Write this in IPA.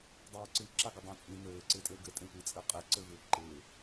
dˤ ɪː ǀ ɨ ǁ a ɡ ɪ dˤ ã t͡sʼ ĩ n ɘː ǀ ɪː tʼ ɘː ɡ ɘ tʼ ẽ tʷ i t͡sʼ ɘ qʼ e ǀ ɘ v ɪː ǃ ɪː

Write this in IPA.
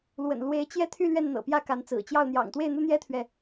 l w ə̰˨˩ n l w e˧˥ ɪ̯ t͡ɕ j ɛ˥˧ t̪ʰ y˥˧ l ɥ ɛ˥˩ n n̪ ɤ̰˨˩ p j ä˥˩ k a˧˥ n t͡s ɹ̩˨˩ t͡ɕ j ɑ˥˩ ʊ̯ n̪ j ɑ̰˨˩ ŋ t̪ w e˥˩ ɪ̯ n̪ u˥ n̪ j ɛ˥ t̪ʰ ɥ ɛ˨

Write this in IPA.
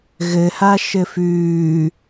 ɣ ɘ h a ʃ ɘ f ʉː

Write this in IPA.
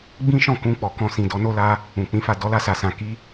ɡ͡b ĩ˦ ʃ ɔ̃˦˨ k ũ˧ k͡p ɔ˨ k ɔ̃˧ s ĩ˨ d ɔ˨˦ n o˦ l a˧ | ũ˨ k͡p ĩ˨˦ f a˦˨ d ɔ˨˦ l a˧ s a˨ s ã˨ k i˧

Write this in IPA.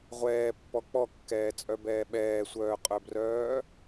ʁʷ ɛː pː ɔ k͡p ɔ kː ɛː t͡sʼ œ b ɛː ɓ ɛː sʷ œː qʼ œ b r œː

